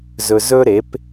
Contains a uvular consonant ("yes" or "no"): no